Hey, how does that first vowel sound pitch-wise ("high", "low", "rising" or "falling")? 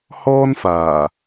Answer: high